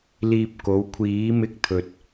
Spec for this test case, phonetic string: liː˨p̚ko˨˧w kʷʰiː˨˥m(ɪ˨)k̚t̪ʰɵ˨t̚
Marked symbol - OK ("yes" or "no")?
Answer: no